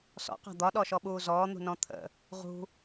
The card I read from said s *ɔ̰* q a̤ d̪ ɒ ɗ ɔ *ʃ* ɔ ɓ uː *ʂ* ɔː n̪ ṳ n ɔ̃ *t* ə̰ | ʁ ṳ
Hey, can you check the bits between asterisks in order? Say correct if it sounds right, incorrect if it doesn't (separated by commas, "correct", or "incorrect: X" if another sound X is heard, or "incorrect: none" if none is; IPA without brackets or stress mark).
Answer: correct, correct, incorrect: z, incorrect: t̪ʰ